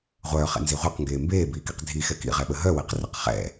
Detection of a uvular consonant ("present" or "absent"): present